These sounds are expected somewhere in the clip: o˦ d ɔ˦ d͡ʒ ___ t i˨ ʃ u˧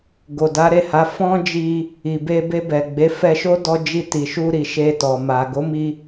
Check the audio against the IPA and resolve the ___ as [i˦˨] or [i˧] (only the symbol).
i˦˨